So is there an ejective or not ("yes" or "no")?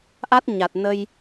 no